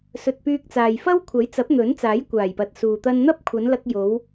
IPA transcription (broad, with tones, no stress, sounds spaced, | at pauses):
s ɵ˨ t̚ p yː˧ k̚ t͡s aː˨ j f ɐ˥ w kʷʰ ɐ˨˥ j t͡s ɐ˨˥ p̚ n̪ ɵ˨˥ n t͡s aː˨˥ j kʷ aː˨˩ j p ɐ˨ t̚ s uː˨ t̪ ɐ˧ n n̪ ɐ˥ p̚ kʷʰ ɐ˨˧ n l ɐ˧ k̚ j o˨˧ w